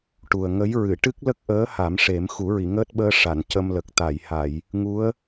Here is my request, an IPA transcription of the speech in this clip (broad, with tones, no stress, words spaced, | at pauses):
ʈu˨˩ə̯ ŋə˧˥jɹɨ˨˩˨ ʈɨ˦˥k̚lə˦˥k̚ʔəː˧˥ ha˨˩˦mʂe˨˩˦m xu˨˩˦ɹi˨˩˨ŋəː˦˥t̚ɓəː˧ ʂa˨˩˨n cə˧mlə˨˩k̚ t̪a˨˩˨jha˨˩˨j | ŋu˧˥ə̯